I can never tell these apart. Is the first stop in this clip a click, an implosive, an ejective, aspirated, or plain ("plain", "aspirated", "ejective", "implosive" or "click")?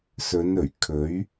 aspirated